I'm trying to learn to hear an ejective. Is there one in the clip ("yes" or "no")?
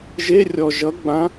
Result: no